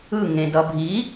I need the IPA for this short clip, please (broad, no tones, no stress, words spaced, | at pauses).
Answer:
ɯ ŋẽdʌbʱi